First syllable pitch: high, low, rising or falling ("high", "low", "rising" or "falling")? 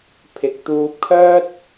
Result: low